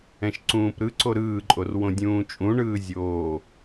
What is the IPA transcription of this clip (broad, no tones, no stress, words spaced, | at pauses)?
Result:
ɛ̃ʃǀũːpɾɯǀo ɾɯːǃʼor wõdʲũːt͡ʃʼũɳɯː zʲoː